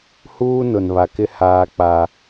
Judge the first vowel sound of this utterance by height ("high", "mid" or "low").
high